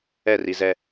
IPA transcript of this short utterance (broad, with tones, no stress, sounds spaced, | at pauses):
ɛ˦˨ r i˨ z ɛ˦